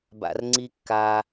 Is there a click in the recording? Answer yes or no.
yes